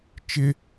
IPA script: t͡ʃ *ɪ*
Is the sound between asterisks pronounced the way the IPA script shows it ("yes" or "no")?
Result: yes